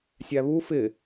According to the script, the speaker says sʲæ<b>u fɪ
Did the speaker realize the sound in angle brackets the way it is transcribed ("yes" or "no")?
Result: no